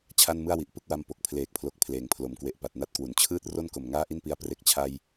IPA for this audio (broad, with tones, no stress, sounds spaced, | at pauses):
t͡ɕʰ a˥˩ n m ɯ˥˩ a̯ w i˨˩ ʔ p ɯ˥˩ k̚ w a˧ m p o˨˩ k̚ pʰ l eː˨˩ k̚ pʰ l o˨˩ k̚ pʰ l eː˩˦ ŋ pʰ l o˩˦ m k w e˨˩ ʔ p a˨˩ t̚ n a˥˩ t̚ k w u˩˦ n t͡ɕʰ ɯː˥˩ t̚ r o˥˩ n k o˨˩ m ŋ aː˥˩ ʔ i˥˩ n p i˧ a̯ p r e˨˩ k̚ t͡ɕʰ a˧ j